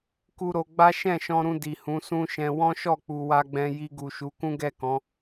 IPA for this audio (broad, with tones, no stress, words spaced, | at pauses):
ku˧ɾo˧ ɡ͡ba˦ ʃɛ̃˦˨ʃɔ̃˧ɾũ˧ di˨hũ˨˦sũ˦ʃɛ̃˧ wɔ̃˦ʃɔ˦˨k͡pu˨ wa˧ɡ͡bɛ̃˧ ji˧ɡu˨ʃu˨˦kũ˦ ɡɛ˦˨kɔ̃˨˦